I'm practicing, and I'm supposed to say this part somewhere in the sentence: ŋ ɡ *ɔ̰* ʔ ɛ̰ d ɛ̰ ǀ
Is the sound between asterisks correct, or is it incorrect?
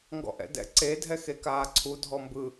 correct